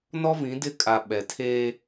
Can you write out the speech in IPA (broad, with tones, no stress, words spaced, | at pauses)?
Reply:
nɔ˦vĩ˨˦dɪ˦˨kʼa˨ ɓɛ˨tʰeː˦